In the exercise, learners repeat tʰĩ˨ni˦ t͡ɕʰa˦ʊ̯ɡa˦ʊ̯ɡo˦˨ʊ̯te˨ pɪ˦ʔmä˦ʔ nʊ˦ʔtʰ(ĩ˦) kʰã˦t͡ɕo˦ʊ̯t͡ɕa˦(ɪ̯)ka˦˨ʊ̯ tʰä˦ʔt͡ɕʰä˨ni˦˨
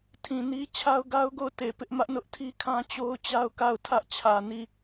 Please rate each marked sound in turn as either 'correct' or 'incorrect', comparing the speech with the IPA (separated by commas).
incorrect, incorrect